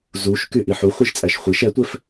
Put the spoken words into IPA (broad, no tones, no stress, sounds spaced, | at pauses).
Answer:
z u ʃ k y ʔ i ħ u χʷ i ʒ t͡sʼ æ ʃ χʷ i ʃ ɛ tʷ ɛ f